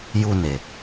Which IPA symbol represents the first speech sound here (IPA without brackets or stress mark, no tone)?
j